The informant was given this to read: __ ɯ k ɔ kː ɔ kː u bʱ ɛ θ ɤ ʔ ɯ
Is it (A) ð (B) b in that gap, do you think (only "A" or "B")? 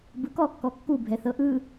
B